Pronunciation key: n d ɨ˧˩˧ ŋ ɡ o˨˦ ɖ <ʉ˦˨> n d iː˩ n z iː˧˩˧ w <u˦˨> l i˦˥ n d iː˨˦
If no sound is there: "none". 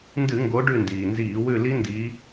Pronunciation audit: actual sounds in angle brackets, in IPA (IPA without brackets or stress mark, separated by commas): ʉ˦˨, ʉ˦˨